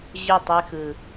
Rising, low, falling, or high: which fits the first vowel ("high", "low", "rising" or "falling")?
falling